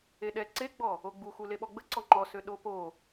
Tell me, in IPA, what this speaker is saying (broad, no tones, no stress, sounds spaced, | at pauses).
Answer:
e ɗ ɛ ǀ e ɡ͡b ɔ | o ɡ͡b u x u l e ɓ ɔ ɡ͡b ə ǀ ɔ ŋ͡ǃ ɔ s ø ɗ o p o